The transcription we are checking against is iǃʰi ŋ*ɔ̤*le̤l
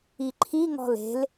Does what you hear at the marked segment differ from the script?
no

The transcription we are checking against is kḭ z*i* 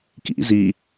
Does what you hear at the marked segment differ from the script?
no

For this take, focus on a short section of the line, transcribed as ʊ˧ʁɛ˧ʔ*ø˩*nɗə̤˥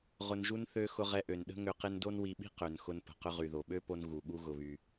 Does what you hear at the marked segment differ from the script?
no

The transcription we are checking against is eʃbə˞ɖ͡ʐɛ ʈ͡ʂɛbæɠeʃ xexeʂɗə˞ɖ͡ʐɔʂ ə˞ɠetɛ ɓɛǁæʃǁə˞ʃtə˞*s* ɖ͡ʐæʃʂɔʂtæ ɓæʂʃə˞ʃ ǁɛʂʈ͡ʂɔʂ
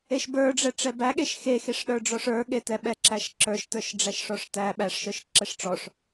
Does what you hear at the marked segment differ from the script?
yes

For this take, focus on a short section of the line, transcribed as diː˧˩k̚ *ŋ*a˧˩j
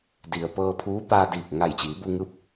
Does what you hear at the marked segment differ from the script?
no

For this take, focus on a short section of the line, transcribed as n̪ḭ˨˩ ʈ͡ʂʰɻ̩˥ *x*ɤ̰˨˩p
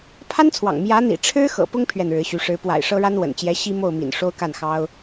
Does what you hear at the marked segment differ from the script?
no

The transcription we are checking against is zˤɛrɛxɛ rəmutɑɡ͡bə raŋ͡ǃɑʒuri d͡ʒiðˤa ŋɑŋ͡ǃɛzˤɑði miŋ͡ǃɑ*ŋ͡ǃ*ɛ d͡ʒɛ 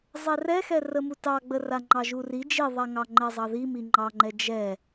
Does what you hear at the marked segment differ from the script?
no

